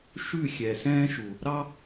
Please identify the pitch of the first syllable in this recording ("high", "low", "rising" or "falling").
falling